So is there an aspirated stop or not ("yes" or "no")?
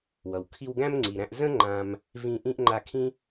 yes